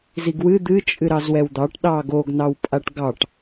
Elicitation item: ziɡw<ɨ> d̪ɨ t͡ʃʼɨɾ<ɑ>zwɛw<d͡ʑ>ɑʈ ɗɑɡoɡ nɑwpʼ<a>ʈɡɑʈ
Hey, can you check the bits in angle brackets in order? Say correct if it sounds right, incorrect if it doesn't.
correct, correct, incorrect: d̪, correct

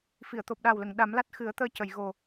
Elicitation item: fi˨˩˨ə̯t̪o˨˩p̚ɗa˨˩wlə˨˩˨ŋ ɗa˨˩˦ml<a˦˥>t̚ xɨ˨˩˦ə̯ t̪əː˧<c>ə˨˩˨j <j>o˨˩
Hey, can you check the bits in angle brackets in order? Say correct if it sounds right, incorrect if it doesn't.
correct, correct, incorrect: ɣ

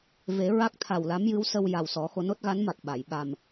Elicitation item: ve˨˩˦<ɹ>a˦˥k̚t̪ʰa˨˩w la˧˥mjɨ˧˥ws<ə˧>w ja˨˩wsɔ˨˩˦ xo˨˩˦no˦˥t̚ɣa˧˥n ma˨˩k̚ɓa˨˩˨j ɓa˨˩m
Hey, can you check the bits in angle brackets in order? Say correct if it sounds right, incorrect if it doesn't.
correct, correct

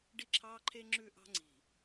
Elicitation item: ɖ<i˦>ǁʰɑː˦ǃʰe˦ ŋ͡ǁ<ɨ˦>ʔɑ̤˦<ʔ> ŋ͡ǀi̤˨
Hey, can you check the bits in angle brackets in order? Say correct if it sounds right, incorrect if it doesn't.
correct, incorrect: ʉ˦, incorrect: none

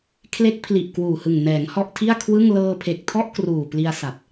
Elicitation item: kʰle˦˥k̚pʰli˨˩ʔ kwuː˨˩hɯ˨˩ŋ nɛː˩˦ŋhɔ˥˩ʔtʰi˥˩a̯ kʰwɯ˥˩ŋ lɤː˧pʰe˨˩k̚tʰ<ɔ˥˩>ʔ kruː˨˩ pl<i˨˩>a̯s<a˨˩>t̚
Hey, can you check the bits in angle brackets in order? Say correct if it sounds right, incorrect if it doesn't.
correct, incorrect: i˧, correct

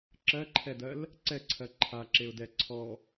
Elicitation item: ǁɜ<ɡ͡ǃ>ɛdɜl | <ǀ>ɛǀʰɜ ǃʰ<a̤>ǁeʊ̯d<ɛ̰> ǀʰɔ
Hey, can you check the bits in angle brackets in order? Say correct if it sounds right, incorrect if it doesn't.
incorrect: ǃʰ, correct, incorrect: a, incorrect: ɛ

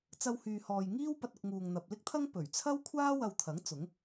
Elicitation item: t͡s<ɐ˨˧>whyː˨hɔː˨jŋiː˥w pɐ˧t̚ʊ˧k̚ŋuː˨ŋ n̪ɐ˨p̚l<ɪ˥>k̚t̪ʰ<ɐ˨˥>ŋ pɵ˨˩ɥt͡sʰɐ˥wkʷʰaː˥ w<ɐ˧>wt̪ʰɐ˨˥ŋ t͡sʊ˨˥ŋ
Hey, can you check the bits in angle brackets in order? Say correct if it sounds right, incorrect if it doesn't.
incorrect: ɐ˧, correct, incorrect: ɐ˥, correct

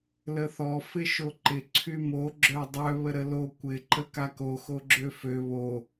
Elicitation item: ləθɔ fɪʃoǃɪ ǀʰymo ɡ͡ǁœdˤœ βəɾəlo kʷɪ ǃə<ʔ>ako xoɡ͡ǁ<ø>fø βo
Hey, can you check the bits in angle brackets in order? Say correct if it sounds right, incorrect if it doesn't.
incorrect: k, correct

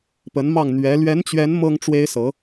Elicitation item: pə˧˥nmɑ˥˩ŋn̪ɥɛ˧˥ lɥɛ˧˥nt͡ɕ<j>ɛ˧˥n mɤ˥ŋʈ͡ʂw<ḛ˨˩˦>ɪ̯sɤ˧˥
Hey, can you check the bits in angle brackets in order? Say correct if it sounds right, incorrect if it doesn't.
incorrect: ɥ, incorrect: e˥

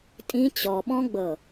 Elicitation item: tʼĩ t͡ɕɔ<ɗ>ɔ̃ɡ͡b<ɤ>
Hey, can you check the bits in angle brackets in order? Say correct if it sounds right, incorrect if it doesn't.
incorrect: ɓ, correct

